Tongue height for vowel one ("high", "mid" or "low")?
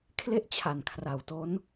mid